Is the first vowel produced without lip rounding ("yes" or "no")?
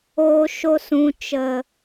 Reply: no